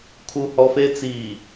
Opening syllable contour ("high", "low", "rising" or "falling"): high